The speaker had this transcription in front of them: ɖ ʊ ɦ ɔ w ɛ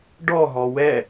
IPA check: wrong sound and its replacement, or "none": ʊ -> ɔ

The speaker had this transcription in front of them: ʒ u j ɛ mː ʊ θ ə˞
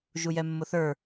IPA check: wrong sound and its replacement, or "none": none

